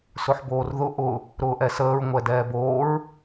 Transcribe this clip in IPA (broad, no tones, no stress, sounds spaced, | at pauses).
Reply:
s ʊ ħ b oː r ð ʊ ʔ ʊ | ɾ ʊː ʔ ɛ s əː ɹ ŋʷ ɛ d ɛː b oː ɹ